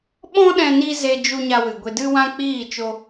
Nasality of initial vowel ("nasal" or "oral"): nasal